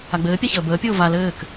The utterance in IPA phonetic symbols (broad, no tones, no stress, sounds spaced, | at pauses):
a ɡ͡b ɘː pʲ a ç əː b əː pʲ oː v a l ɘː k